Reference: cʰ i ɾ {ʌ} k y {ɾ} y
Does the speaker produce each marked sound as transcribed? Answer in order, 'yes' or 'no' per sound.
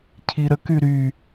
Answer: no, yes

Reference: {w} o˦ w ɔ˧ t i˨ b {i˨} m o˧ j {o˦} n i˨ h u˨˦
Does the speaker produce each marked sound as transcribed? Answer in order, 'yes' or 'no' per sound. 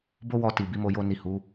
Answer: no, no, no

